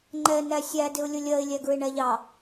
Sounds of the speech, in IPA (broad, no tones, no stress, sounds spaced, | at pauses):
ŋ͡ǃ ɛ n æ sʲ æ d ɪ ʊ̯ lʲ ʊ lʲ ɜ ɪ̯ lʲ æ ɡ ɹ ɪ ɳ æ ʎ ɑ